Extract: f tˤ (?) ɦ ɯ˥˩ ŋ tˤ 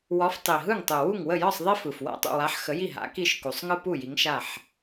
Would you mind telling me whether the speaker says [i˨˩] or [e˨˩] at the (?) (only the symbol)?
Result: i˨˩